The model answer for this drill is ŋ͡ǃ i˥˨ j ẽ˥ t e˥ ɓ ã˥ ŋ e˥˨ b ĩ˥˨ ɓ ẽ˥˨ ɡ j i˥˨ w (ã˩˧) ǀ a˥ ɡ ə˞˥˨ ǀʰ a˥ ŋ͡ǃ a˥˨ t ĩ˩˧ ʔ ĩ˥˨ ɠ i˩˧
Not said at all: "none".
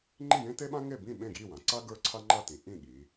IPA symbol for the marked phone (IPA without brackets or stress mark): ã˩˧